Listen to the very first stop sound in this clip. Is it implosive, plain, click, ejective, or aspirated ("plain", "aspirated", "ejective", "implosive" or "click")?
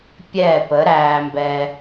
plain